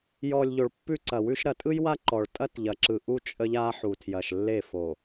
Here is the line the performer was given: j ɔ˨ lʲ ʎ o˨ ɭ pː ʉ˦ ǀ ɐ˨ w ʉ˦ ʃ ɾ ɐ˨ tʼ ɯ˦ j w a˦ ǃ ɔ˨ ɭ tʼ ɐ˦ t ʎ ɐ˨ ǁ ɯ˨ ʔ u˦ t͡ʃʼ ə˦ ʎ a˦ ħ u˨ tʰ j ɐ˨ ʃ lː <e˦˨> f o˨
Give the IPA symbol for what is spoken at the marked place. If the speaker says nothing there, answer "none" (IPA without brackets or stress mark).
e˦˨